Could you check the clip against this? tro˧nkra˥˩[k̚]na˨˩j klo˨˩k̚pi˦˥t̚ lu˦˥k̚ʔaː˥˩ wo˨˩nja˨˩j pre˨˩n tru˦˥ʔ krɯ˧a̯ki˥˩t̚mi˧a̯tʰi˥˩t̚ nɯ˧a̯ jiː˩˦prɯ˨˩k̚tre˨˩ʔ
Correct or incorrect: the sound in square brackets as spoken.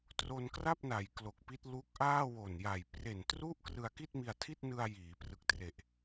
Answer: incorrect: p̚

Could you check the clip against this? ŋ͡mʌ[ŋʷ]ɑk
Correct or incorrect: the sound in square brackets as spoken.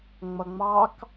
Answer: incorrect: ŋ͡m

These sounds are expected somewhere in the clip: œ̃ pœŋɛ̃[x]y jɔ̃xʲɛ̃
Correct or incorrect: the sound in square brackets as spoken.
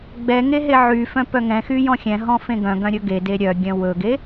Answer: correct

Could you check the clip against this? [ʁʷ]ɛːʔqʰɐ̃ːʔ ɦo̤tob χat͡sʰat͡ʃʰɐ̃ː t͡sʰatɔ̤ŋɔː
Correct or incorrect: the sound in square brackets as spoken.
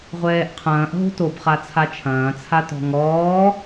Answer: correct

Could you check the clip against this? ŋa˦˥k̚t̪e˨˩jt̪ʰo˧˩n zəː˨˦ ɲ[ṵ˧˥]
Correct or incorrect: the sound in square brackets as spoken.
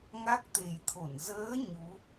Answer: incorrect: u˨˦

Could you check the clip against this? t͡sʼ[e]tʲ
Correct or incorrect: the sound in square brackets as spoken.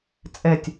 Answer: incorrect: ɛ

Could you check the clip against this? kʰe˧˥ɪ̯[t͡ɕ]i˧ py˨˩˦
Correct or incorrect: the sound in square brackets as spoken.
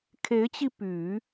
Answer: correct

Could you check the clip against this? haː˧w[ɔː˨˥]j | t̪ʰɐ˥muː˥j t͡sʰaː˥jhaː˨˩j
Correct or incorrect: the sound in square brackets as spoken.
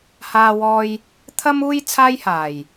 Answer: incorrect: ɔː˧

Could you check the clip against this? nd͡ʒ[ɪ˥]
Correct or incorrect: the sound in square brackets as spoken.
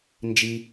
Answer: incorrect: i˥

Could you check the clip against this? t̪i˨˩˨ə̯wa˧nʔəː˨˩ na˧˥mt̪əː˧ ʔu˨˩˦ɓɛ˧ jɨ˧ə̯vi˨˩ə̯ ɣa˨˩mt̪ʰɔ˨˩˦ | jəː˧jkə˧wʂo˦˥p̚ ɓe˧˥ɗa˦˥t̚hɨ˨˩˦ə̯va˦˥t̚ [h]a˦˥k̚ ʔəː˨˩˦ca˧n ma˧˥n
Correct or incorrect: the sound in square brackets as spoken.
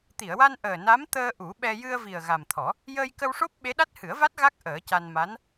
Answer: incorrect: ɣ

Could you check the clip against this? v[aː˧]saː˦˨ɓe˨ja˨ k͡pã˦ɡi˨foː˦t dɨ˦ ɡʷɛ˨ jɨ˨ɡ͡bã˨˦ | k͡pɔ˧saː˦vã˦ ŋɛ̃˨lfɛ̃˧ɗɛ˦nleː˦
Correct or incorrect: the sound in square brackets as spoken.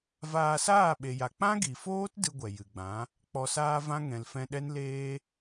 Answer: correct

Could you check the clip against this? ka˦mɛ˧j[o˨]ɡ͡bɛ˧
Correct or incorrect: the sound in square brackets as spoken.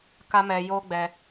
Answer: incorrect: o˦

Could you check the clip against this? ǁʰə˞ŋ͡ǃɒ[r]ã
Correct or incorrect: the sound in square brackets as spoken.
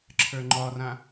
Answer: correct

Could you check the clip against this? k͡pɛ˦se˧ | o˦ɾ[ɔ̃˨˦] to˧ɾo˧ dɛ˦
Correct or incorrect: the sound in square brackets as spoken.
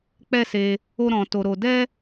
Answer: incorrect: ɔ̃˧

